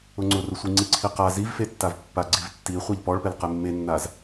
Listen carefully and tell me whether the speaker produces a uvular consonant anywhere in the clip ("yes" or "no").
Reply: yes